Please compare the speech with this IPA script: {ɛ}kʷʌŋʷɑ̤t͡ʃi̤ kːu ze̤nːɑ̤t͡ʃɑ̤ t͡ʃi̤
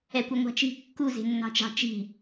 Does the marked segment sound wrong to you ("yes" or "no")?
no